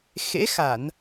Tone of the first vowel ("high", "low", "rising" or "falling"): rising